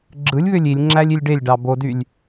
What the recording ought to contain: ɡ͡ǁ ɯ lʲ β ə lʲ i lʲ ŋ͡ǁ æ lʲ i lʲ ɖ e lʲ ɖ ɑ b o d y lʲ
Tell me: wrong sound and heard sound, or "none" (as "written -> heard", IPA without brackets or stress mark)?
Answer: ə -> ø